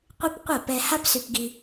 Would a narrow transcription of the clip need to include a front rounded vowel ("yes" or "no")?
yes